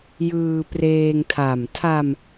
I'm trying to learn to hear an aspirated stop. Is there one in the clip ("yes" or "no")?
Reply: yes